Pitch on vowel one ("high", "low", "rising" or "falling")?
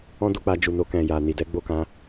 high